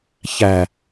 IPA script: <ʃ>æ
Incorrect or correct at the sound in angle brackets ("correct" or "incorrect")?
incorrect